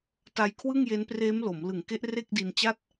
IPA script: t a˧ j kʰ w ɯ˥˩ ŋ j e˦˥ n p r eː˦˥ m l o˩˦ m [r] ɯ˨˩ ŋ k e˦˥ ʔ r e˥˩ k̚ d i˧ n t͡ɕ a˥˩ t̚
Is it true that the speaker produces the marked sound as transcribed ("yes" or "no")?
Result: no